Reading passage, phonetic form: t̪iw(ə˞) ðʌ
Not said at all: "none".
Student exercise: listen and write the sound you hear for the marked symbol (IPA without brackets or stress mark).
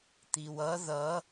ʌ